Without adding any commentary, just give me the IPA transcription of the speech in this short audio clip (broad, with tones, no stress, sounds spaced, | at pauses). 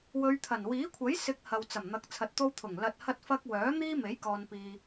w ɵ˨˧ ɥ t̪ʰ ɐ˨˩ n w iː˨˥ kʷʰ ɐ˨˥ j s ɪ˨˥ k̚ h ɐ˨ w t͡s ɐ˨˩ m n̪ ɐ˨˥ k̚ t͡sʰ ɐ˨ t̚ t̪ o˧ w t̪ʰ ʊ˨˩ ŋ l ɐ˧ t̚ h ɐ˥ t̚ f ɐ˥ k̚ w œː˨˥ n̪ iː˥ m e˨˥ j k ɔː˨ n p iː˨